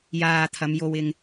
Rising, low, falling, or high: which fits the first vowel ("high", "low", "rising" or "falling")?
low